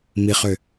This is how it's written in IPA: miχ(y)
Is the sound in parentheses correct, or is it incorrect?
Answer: incorrect